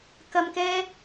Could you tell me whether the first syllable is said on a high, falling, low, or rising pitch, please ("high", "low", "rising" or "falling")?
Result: low